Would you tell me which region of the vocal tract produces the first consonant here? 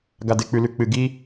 velum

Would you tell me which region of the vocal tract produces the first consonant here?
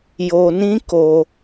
palate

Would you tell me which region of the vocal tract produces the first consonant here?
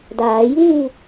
tongue tip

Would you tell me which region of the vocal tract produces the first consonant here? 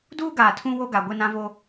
tongue tip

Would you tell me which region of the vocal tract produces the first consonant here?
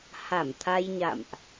throat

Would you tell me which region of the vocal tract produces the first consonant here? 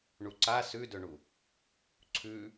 retroflex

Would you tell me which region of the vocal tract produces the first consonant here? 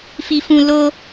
lips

